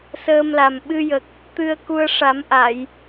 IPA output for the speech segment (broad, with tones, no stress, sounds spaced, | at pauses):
s əː˧ m l a˨˩ m ɓ ɨ˧ j ə˨˩ k̚ | t̪ ɨ˧ ə̯ k u˧ ə̯ ʂ a˨˩˦ m ʔ a˨˩˨ j